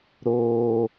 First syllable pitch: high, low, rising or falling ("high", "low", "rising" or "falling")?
high